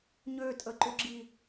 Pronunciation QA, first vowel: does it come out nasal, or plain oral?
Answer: oral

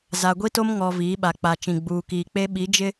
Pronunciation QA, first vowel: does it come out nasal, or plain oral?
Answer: oral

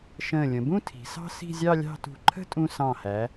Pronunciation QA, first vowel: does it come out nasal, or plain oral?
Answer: nasal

